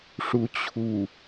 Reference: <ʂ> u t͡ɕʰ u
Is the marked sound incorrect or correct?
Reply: correct